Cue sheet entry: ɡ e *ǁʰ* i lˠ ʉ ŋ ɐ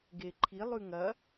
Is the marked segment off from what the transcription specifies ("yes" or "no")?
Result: yes